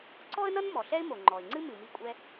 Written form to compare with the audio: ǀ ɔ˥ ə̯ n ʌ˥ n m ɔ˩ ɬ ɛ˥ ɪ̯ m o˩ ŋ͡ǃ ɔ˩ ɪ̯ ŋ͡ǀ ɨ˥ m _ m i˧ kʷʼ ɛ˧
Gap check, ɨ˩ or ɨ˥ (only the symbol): ɨ˩